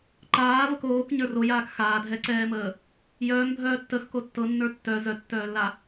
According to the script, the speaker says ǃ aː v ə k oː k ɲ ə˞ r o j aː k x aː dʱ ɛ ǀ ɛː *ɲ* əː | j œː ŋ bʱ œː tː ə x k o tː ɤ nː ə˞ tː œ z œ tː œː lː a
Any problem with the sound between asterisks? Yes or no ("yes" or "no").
yes